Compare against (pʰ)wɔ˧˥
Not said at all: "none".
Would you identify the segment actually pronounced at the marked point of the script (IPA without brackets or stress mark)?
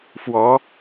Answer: f